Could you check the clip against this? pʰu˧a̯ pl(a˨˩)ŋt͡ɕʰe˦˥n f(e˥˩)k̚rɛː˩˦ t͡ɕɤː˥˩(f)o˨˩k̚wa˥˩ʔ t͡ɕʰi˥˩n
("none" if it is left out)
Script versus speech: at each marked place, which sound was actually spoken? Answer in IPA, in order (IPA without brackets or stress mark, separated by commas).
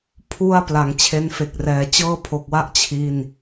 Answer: a˩˦, e˨˩, pʰ